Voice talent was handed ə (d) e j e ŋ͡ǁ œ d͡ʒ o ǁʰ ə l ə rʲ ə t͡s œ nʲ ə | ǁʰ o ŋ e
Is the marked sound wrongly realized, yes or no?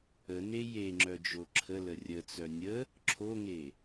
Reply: yes